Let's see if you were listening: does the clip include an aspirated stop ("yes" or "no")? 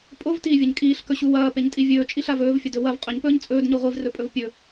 no